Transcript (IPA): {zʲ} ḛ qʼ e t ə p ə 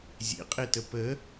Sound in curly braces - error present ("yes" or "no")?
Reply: no